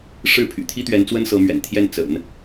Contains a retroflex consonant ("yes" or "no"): yes